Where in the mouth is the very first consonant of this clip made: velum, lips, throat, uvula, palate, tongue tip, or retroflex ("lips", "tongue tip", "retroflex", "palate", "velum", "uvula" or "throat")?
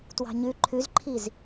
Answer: tongue tip